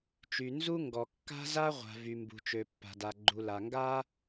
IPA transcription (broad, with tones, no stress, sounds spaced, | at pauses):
t͡ʃ y˨ n z u˦ ŋ ɡ ɔ˨ kː a̤˦ z a˦ ʁʷ a̤˨ v y˨ m b ṳ˨ t͡ʃ ø˨ pː a̤˨ d a˨ ɡ͡ǃ u˨ l a˨ ŋ ɡ a˦